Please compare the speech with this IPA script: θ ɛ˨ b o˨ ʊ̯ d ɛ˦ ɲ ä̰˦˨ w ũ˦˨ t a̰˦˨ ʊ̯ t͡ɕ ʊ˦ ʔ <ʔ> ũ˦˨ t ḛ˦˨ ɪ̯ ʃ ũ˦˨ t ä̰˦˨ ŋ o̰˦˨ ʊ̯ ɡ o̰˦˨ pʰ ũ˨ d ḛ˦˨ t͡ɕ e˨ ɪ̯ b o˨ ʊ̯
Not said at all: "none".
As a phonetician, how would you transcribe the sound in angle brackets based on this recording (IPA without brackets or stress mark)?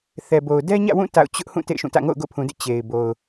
h